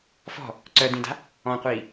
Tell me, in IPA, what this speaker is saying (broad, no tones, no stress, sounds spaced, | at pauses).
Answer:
f ɔ̤ | ǀ œ d ĩ d a̤ | ɔ̃ qʷ iː